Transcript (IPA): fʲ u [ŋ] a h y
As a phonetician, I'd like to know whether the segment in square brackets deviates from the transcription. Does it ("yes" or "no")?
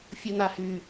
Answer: yes